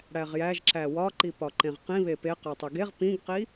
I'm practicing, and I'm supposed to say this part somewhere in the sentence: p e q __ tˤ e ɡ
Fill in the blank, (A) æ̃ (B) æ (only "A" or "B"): B